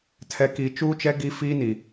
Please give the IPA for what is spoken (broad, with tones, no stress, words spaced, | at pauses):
tʰɛ˨ki˨ t͡ʃuː˦t͡ʃɛ˦ ɡi˦ fiː˦ni˨